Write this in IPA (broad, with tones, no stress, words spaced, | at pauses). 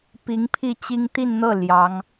pi˧˥ŋpʰi˥˩t͡ɕi˥ŋ t̪i˥˧nn̪ɤ˥˩ ljɑ˧˥ŋ